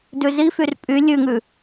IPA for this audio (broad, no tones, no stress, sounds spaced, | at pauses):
d ʉ z i f y r pʼ y lʲ ʉ ŋ ʉ